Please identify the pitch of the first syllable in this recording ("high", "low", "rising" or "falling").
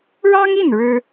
high